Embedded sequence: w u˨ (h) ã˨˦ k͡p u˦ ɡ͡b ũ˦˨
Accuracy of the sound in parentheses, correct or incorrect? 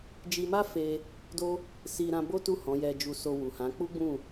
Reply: correct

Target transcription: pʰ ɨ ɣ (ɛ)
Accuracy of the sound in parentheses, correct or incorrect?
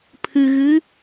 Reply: incorrect: ɨ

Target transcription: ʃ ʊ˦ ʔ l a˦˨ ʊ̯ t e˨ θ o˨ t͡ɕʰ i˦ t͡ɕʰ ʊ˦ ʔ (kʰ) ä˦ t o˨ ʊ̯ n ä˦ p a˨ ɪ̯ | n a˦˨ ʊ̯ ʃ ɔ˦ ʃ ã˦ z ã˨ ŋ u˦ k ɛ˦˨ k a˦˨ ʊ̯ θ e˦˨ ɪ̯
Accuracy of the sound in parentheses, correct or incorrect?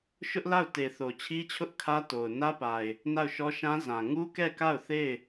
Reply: correct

